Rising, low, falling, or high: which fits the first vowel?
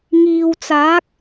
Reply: low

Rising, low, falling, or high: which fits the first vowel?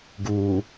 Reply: low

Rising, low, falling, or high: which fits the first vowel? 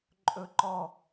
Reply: falling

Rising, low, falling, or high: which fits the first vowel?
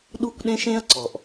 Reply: high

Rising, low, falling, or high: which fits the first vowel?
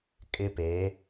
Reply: high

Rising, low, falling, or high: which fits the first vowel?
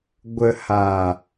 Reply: low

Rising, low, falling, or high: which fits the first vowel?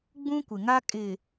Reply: high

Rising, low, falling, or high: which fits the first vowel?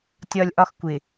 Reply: high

